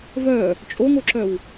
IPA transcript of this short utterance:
v œ | t͡ʃʼ o ŋ o ǁ œ w

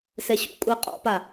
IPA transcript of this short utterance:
s ɛ ɕ ṵ kʷʼ a qʼ ɔ̰ p a

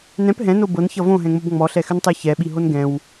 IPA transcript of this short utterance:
n ɛ̃ p ɦ ɛ̃ n o b ɤ n ç ʌ v õ ɦ ɛ̃ ŋ͡m o b ŋ͡m ɔ ɬ ɛ x ʏ n tˤ ɛ ç ɛ ɓ i ɦ o n ɡ ɛ̃ w

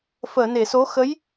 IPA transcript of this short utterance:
f əː˨˩˨ n e˨˩˨ s o˧˥ x ə˧˥ j

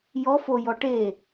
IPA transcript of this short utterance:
j ɔ f o j ɔ ʈ e

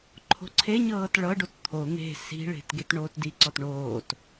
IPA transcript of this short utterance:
ǃʰ o̤ ǀʰ e ɲ ɤː t ɭ ɤ ɖ o t t̪ʰ o n̪ e̤ s i̤ ɭ e̤ t ɡ e t ɳ oː t d i ǀ ɔ t ɳ oː t

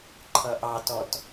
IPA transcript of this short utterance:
ǃʰ ʌ ʔ ɑ t ɔ t

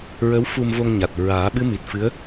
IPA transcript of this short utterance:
ɹ ə˧˥ w f u˧ m v o˧ ŋ ɲ a˨˩ t̚ ɹ aː˨˩˦ ɓ ɨ˧˥ m i˨˩ t̚ f ɨ˧˥ ə̯

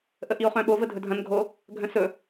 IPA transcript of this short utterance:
ʔ ə ʔ i o̯ χ œ̃ ɓ o v ə dʱ ɵ dʱ ɐ̃ n ɡʱ o | ɡʱ œ̃ s ɵ

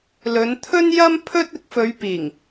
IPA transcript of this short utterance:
l ɵ˨˧ n t̪ʰ ɵ˥ n j ɐ˥ m pʰ ɵ˥ t̚ ɪ˨˥ k̚ f ɵ˨˧ ɥ p iː˨˩ ŋ

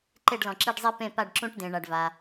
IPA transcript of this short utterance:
ǃ e˦˨ ɖ l ɔ̃˩ ǁ i˦˨ ɖ zˤ i˦ p ẽ˦˨ p a˦˨ ɖ ǁ ũ˦ ʈ d ẽ˩ ɳ a˩ ɖ v a˩

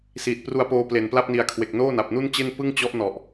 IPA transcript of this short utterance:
s iː˨˩ t̚ p r u˧ a̯ p oː˧ p l e˨˩ n p l a˥˩ p̚ n i˨˩ a̯ kʰ w e˨˩ k̚ n oː˥˩ n a˨˩ p̚ n u˥˩ n t͡ɕ e˥˩ n p ɯ˥˩ ŋ t͡ɕ ɔ˦˥ ʔ n ɔ˨˩ ʔ

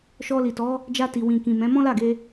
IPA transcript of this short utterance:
ʃ ɔ˧ l i˨ t ɔ˨˦ | d͡ʒ a˧ t i˨ w ĩ˨ k ĩ˨ m ɛ̃˨˦ m ɔ̃˦ l a˦˨ ɡ e˧

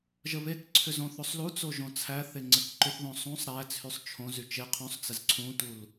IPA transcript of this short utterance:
ʒ ə β e k ǀʰ ʏ z õ θ o sˤ l u t͡s o ʒ õ t͡sʰ æ θ e ŋ͡ǀ ɘ k ǃ ʏ θ ð õ sˤ ũ sˤ ɾ æ t͡sʰ y sˤ t͡ʃʰ õ z y t͡ʃ e qʰ ũ sˤ t͡s ɘ z ǀʰ ũ t u l

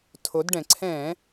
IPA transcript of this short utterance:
tʰ o˩˧ d ɖ ɛ̃˩ ǀʰ ɛ̃˧˩˧

